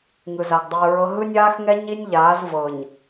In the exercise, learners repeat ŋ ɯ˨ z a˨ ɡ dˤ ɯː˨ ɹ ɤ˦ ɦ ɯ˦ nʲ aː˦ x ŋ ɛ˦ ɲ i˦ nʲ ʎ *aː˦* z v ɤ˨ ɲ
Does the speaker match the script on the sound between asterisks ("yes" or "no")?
no